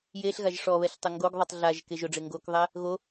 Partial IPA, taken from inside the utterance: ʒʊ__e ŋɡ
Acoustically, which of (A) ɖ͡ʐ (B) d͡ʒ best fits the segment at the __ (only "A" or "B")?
A